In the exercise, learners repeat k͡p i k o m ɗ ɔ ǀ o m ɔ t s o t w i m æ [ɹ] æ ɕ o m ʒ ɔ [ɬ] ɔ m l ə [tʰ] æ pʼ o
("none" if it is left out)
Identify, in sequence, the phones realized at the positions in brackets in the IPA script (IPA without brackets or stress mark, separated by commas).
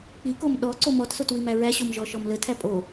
ɹ, ʃ, tʰ